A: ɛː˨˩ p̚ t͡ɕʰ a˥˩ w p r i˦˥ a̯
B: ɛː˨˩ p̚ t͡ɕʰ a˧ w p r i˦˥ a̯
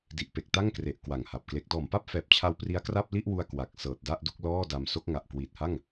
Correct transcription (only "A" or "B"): B